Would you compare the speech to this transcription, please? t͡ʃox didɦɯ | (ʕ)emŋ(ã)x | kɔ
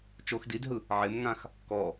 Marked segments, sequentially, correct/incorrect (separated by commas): correct, correct